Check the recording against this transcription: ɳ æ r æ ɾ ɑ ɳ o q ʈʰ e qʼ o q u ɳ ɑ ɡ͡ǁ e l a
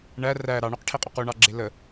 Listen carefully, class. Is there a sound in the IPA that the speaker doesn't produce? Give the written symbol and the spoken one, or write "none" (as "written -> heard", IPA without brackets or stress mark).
a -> ə